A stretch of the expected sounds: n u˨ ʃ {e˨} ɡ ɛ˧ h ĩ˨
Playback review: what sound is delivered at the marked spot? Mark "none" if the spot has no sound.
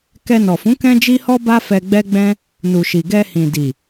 i˨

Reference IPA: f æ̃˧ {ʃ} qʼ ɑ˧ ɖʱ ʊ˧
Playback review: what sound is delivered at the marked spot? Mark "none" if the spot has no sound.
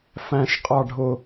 ʃ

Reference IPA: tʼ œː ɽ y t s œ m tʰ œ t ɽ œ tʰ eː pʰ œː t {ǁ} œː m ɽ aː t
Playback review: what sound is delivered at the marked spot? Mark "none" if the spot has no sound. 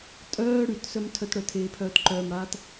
ǃ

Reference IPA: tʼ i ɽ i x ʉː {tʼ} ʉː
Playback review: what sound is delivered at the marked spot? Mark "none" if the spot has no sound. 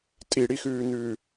n̪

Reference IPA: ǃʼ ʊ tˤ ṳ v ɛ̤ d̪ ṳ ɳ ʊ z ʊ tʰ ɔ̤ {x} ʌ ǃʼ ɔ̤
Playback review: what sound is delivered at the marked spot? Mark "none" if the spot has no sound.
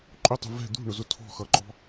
x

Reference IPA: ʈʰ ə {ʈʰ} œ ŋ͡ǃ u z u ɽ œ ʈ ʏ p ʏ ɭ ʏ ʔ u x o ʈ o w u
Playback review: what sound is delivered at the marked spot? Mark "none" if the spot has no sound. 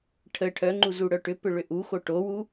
ʈʰ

